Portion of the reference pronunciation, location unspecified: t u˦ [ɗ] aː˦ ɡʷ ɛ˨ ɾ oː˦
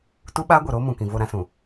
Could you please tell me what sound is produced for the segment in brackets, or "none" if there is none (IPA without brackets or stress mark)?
ɓ